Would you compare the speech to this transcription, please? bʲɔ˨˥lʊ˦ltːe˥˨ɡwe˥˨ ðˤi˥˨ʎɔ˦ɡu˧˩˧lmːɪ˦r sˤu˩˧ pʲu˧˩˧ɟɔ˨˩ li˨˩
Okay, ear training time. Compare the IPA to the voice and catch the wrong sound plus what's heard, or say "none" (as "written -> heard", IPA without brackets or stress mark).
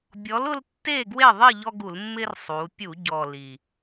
none